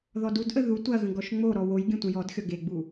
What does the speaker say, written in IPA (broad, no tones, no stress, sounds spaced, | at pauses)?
ð ɔ d u d ʔ ə ð u tʷ ɐ ɣ ə̃ ɡ ɔ ʃ ŋ͡m o ɾ ɔ w o j ɡʲ ə̃ tʷ ə̃ j ɔ d xʲ ɔ ɡ e ɡ͡b u